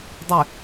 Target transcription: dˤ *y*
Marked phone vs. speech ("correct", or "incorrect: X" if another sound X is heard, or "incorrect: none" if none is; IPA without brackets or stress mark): correct